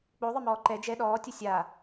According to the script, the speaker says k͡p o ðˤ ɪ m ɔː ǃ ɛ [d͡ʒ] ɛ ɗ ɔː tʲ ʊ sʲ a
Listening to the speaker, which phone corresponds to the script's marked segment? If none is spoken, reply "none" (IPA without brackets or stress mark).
d͡ʒ